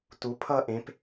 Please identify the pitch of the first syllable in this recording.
rising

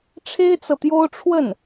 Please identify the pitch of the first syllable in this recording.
high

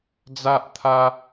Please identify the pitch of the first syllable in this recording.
high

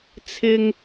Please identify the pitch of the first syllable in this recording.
high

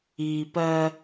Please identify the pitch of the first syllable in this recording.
low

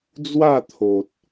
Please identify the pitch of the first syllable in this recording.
falling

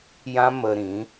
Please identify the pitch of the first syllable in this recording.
high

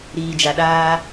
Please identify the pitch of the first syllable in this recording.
low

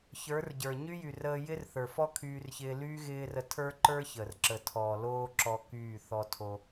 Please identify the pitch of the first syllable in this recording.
rising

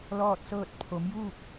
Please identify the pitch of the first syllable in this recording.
falling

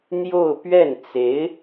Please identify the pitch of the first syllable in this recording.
falling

